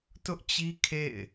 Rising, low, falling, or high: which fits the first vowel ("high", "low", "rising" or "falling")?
high